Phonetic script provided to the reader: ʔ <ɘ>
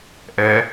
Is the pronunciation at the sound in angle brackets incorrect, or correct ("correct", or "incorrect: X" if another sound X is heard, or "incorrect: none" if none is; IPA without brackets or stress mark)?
incorrect: ɛ